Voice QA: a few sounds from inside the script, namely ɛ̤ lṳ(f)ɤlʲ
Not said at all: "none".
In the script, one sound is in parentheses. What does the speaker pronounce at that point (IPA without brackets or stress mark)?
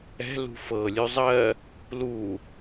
f